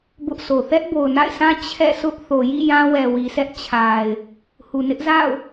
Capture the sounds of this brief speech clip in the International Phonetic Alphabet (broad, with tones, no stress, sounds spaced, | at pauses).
b ʊ˦ ʔ sʰ o˨ θ ɛ˦ ʔ b o˨ ʊ̯ n a̰˦˨ ɪ̯ sʰ ã˦ t͡ɕʰ ɛ̰˦˨ sʰ ʊ˦ ʔ θ o˨ j ḭ˦˨ j ã˦ w ɛ˨ w i˨ s ɛ˦ ʔ t͡ɕʰ a˨ ɪ̯ | h u˨ n ɪ˦ ʔ z a̰˦˨ ʊ̯